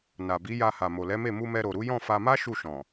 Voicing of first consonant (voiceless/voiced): voiced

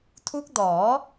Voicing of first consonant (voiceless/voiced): voiceless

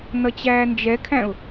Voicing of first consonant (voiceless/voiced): voiced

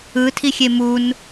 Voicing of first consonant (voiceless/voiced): voiceless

